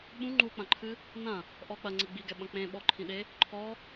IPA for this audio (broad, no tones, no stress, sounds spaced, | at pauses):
ɓ ũ ŋ͡ǃ u k͡p ɐ̃ ǃʰ ɨ | n ɐ̃ | ʔ ɔ k͡p ɐ ŋ͡ǀ e ɡ͡b i ɡ ɛ ɓ ɐ̃ k͡p ẽ ɓ ɔ ǃʰ ĩ ɗ e | ǃʰ ɔ